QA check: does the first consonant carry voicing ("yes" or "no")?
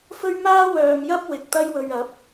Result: no